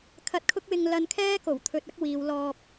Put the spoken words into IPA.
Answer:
kʰ ɐ˧ t̚ kʰ ʊ˥ k̚ w ɪ˧ ŋ l ɐ˧ n kʰ ɛː˥ k o˨˩ w t̪ʰ ɵ˧ t̚ ɐ˥ k̚ w iː˨˧ w l ɔː˧ p̚

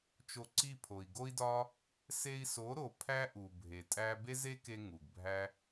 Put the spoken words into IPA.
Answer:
t͡ʃ o˧ ǀ i˦˨ pʰ o˨ i̯ ɡ o˦ i̯ d ɒ˦ | s e˧ i̯ s o˨˦ ɾ o˨ pʰ æ˦ ʔ u˨ bʱ e˨ tʼ æ˦ b e˦ z e˦ k e˧ ŋ u˨ ɡ bʱ æ˦

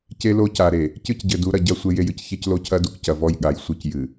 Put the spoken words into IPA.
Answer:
c e˦ l o˦ c a˨ ɾ e˨ | c ɨ˦ c ɟ ɘ˨ d u˨˦ ɾ ɐ˨ ɟ ɐ˦ sʷ e˦ j e˦ j ɨ˦ c ç e˦ c l o˦ cʰ ɐ˦ d u˦ k c ɐ˨ v ɔ˦ j ɠ a˨ j sʷ ɨ˦ c j ɨ˨

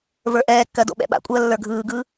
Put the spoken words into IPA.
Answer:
v ə˞ ʔ ɛː kː ɜ d o̰ ɓ ɛ̰ ɓ a̰ kʷʼ ɜː lː ə˞ ɡʱ ɯː ɡ ɯ

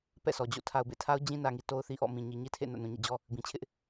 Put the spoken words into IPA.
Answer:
p ɛ̰˦˨ sʰ ɔ˨ d͡ʑ o̰˦˨ tʰ a˨ ʊ̯ b ḛ˦˨ tʰ a˦ ʊ̯ d͡ʑ ĩ˦ n ä˨ ŋ i˨ t o˦ ʊ̯ θ i˦ ʔ ɔ̰˦˨ m ĩ˨ ɲ i˨ ɲ i˦ tʰ ḛ˦˨ n ä̰˦˨ n ũ˨ ɲ ḛ˦˨ d͡ʑ ɔ˦ | b ĩ˨ t͡ɕʰ ɪ˦ ʔ

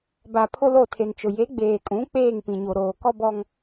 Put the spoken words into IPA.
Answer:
b a˨ pʰ ʊ˦ l o˦˨ tʰ e˨ n t͡ʃ ʊ˨ j e˨˦ ɡ͡b eː˨ kʼ ũ˨˦ k͡p eː˦˨ ŋ p ĩ˨ ɲ o˨ ɾ oː˨ k ɔ˦ b ɔ˦ ŋ

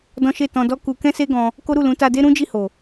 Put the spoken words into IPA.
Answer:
d ɔ̃˦ ʃ e˦˨ t ɔ̃˧ d ɔ˦ k u˧ k ɛ̃˦ s e˦ ɡ ɔ̃˧ | k o˦ ɾ u˦˨ l ũ˨˦ t a˧ d e˦ ɾ ũ˦ d͡ʒ i˦˨ h o˨

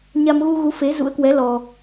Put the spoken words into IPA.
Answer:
ɲ a˧ m ɣ u˧ ɣ u˨˦ f e˨˦ z ṵ˧˥ ə̯ k w ɛ˨˦ l ɔ˧

